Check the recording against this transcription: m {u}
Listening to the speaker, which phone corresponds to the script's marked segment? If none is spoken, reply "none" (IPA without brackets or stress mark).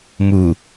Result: u